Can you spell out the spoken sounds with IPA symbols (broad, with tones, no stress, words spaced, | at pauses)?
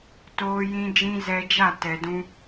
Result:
toː˦jĩ˦d͡ʒĩ˦ zɛ˧d͡ʒa˦˨ tɛ˨dũ˧